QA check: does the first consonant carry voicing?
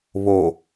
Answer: yes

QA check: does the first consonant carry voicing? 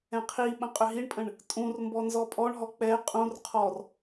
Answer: no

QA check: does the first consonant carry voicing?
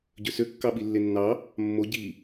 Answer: yes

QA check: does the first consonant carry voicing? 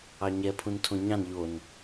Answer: yes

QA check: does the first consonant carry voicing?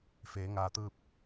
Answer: no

